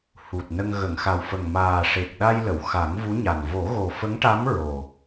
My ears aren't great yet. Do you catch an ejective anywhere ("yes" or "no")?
no